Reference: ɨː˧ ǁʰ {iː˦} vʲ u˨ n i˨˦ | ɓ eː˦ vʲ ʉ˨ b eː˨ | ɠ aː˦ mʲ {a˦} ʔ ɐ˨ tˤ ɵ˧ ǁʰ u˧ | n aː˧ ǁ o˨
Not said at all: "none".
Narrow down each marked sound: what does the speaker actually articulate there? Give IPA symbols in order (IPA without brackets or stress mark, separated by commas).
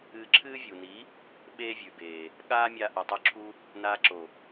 ɨː˦, a˧